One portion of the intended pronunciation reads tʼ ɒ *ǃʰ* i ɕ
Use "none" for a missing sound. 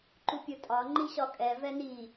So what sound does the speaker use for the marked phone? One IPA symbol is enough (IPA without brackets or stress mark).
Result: ŋ͡ǃ